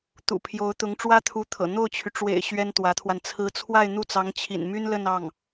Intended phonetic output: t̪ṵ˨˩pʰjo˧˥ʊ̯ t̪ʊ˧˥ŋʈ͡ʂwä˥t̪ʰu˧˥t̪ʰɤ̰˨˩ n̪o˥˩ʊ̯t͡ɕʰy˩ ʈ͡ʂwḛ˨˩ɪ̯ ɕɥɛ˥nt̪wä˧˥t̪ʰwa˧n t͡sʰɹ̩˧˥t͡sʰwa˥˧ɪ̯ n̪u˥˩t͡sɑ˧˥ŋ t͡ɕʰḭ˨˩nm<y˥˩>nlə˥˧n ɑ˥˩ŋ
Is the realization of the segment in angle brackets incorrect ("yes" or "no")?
yes